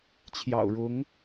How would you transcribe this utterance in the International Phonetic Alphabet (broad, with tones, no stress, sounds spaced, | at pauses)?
t͡ɕʰ j ɑ̰˨˩ ʊ̯ ɻ ʊ˧˥ ŋ